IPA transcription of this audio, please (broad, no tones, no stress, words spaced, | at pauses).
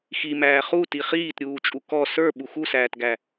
ximæː χuti χiːtɾʲuːt͡ʃʼu kɔ sə˞ ɓuxusæːtɡæ